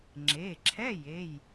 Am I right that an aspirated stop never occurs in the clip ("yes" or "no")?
no